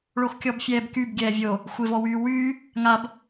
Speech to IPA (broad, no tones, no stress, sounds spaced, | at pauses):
ɭ o x kʲ ɔ b fʲ ɛː b k y b ɡʲ ɛː vʲ o | xʷ e v ɔ w yː w yː | ŋ a b